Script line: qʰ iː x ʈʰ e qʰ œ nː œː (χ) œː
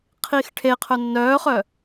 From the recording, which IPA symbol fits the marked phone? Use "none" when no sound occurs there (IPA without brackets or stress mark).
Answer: χ